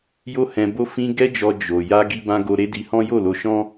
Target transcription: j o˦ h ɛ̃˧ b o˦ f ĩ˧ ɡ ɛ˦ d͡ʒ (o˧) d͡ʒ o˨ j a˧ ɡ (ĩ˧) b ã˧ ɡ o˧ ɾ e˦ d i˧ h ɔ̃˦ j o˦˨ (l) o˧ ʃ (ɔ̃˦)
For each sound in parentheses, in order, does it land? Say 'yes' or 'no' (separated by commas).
no, no, yes, yes